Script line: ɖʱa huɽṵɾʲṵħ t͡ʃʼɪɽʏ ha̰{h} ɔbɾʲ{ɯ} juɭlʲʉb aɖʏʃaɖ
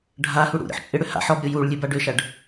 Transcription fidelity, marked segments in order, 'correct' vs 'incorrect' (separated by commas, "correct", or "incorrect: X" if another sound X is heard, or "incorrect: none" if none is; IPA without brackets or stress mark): incorrect: ħ, incorrect: u